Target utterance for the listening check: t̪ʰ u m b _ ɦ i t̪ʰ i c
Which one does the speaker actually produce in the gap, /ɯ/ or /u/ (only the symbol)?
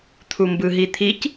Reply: ɯ